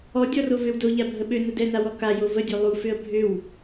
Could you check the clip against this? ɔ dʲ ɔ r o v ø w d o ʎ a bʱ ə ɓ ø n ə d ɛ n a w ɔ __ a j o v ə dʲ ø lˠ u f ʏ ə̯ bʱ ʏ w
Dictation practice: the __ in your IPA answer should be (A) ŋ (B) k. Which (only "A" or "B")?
B